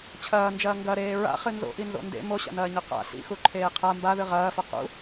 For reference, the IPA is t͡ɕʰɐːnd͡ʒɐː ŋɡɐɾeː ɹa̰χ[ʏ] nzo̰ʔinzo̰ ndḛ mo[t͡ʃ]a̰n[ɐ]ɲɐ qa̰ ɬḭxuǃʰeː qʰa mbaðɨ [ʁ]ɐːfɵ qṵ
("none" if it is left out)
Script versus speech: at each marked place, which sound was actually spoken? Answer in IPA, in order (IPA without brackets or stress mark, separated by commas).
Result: ɨ, ɕ, ɐː, ʁ